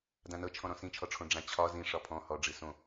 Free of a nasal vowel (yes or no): no